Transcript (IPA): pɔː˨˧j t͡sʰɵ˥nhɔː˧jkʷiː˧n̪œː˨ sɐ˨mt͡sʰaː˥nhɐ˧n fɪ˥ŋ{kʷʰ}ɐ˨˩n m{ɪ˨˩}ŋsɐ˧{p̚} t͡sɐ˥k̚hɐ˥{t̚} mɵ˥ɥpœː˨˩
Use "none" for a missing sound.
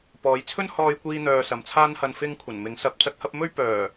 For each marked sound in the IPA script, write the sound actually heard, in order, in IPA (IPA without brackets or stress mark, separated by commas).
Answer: kʷʰ, ɪ˨˥, p̚, p̚